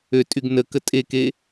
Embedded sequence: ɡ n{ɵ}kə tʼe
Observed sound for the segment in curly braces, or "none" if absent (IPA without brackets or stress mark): ə